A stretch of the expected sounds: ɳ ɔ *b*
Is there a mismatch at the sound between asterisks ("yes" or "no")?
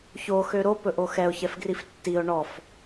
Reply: yes